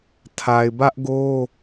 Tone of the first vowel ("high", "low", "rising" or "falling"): low